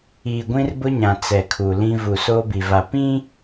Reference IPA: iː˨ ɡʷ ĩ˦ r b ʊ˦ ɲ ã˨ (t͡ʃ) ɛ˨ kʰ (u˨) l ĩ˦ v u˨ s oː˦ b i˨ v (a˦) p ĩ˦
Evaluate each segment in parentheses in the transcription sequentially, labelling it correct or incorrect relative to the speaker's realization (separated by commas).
incorrect, correct, incorrect